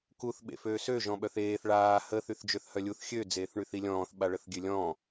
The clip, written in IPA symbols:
k u θ ɓ ḛ f øː s ø ʒ ɔ̃ ɓ œ θ eː θ ɭ aː h ə θ y θ d͡ʒ ø θ h œ lʲ u θ xʲ ø d͡z eː θ ɳ y θ i lʲ ɔ̃ː θ ɓ a ɭ ə θ ɡʲ ø lʲ ɔ̃ː

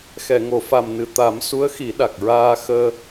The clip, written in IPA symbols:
x ɛ˨˩˨ ŋ o˨˩˨ f a˨˩ m n ɨ˨˩ t̪ a˨˩˦ m s u˧˥ ə̯ x i˨˩˦ ɗ a˨˩ k̚ ɹ aː˧ x əː˧

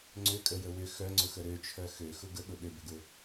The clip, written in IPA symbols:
ŋ͡ǀ ʏ kʼ ə j ə w ʏ x œ ŋ͡ǀ ʊ x ə ɾ ø t͡ʃʰ œ x ø x ʊ ɡ ə ɠ ʊ ɗ ʏ b ʏ ɡ ʊ

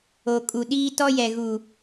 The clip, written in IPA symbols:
o˨ kʼ u˨ ɗ iː˦ t ɔ˦ j ɛ˨ ɣ u˨

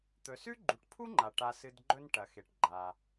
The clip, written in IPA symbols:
t̪ ɵ˩ s ʉ˥ ɡ͡ǃ u˩ ʈ pʰ u˥ ŋ͡ǃ a˩ ʈ a˨ s ɨ˨ d ɡ͡ǃ ɵ˦ n ʈ ɐ˩ x e˩ ʈ ɡ͡ǃ a˩

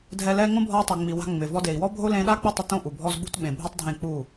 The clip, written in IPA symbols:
dʱ ɛ˧ l ɛ˦ ŋ õ˦ bʱ ɔ˧ u̯ tˤ o˨ ŋ͡m i˨ w a̤˧ ŋ͡m ɪ˨ v ɔ˧ d e˨ i̯ w ɔ˦ bʱ o˦ l ẽ˧ ɗ a˦ k͡p ɪ˦˨ tˤ ɪ˦ t õ˦ ʔ u˨ bʱ ɔ˦ z ɓ ṳ˧ t ɓ ẽ˨ bʱ u˦ tˤ dʱ ẽ˦˨ k͡p u˦˨

